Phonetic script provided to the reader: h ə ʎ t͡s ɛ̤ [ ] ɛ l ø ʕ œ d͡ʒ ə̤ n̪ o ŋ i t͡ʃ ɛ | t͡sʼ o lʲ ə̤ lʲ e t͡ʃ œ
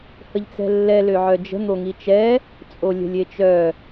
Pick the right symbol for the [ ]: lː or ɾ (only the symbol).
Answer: lː